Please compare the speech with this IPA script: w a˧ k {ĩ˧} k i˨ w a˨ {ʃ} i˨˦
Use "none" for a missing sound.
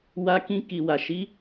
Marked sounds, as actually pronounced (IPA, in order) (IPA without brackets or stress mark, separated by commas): ĩ˧, ʃ